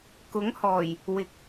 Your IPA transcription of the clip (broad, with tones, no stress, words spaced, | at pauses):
kʊ˨˥ŋhɔː˨˩j | wɪ˧k̚